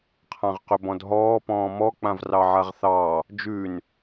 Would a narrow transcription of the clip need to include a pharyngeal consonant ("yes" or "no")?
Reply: yes